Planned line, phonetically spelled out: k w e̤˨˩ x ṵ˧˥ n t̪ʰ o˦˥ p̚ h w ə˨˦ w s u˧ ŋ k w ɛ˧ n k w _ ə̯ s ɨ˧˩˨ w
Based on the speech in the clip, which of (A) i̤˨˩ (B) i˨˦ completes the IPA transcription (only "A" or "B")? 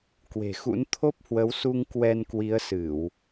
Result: B